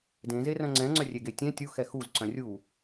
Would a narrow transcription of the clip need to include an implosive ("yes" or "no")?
no